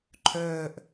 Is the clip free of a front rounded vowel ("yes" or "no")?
no